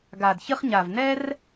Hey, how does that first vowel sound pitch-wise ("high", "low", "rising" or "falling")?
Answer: low